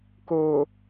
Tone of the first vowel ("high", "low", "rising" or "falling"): low